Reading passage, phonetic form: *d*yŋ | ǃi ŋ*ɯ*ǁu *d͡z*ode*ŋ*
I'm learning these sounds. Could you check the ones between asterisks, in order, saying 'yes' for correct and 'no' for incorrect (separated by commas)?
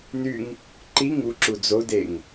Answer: no, no, yes, yes